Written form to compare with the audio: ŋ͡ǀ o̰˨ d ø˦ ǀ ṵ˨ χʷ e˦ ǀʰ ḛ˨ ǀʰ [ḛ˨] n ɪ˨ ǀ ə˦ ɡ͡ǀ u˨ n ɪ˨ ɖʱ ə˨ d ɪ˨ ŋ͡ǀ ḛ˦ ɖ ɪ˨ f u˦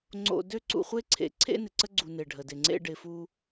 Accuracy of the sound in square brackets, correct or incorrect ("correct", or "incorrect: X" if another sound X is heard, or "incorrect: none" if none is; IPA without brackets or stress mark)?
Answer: incorrect: ḛ˦